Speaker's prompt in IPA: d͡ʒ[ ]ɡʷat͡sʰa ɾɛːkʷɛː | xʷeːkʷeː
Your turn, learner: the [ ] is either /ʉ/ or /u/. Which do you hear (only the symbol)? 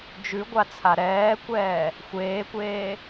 ʉ